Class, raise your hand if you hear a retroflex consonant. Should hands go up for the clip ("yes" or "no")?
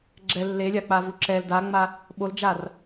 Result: no